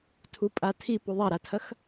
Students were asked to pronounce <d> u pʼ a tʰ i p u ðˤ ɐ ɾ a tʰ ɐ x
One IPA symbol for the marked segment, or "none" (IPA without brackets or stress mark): tʰ